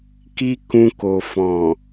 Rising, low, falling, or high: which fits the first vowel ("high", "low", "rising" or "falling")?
high